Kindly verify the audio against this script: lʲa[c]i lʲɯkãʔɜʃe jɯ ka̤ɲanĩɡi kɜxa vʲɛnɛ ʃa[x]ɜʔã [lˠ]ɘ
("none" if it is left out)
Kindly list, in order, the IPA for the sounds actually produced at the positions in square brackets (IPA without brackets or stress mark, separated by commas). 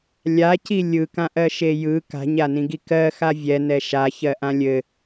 c, ç, lʲ